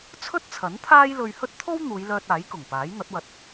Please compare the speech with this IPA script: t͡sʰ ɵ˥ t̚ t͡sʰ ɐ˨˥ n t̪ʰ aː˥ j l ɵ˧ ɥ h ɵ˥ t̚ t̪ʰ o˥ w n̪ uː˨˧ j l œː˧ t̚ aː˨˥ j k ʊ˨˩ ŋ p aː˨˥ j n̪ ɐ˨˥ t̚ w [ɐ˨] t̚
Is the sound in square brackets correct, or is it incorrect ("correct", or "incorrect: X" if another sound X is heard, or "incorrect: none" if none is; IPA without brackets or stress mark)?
incorrect: ɐ˧